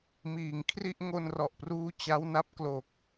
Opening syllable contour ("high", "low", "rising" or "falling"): low